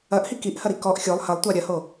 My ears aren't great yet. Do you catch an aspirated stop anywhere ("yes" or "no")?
no